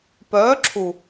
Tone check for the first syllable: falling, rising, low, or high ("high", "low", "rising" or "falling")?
rising